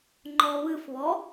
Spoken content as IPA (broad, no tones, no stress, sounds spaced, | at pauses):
ŋ͡ǃ ɔ β ɨ f β ɔ